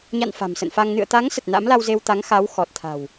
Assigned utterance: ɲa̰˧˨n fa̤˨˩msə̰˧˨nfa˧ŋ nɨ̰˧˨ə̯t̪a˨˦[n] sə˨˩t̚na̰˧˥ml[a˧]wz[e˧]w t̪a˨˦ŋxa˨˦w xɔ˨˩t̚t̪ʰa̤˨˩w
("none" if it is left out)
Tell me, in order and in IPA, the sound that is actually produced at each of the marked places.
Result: ŋ, a˧, e˧

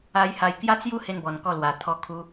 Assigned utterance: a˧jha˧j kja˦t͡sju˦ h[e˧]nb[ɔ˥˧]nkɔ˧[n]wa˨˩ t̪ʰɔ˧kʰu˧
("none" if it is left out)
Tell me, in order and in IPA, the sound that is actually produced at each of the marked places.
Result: e˧, ɔ˨˩, l

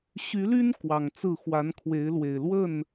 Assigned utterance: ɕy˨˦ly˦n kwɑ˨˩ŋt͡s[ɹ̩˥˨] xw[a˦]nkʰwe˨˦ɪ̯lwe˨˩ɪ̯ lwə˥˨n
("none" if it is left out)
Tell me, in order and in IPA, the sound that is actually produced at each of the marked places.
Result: ɹ̩˥˨, a˨˦

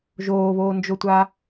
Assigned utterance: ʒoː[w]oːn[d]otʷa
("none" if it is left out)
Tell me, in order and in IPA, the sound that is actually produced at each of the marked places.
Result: β, d͡ʒ

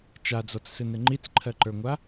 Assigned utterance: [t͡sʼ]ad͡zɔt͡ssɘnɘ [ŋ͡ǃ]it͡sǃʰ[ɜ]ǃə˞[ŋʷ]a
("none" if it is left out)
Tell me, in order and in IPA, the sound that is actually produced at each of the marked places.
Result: t͡ʃ, ŋ͡ǃ, ɜ, ŋʷ

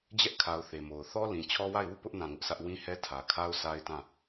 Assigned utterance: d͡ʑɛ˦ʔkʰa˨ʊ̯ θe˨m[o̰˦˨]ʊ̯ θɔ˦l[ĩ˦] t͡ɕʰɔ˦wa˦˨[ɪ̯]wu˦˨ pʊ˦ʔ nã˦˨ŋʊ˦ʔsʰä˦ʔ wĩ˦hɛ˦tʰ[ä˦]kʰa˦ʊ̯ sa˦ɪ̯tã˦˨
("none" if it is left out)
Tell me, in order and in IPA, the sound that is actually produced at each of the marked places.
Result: o˨, ĩ˨, ɪ̯, ä˨

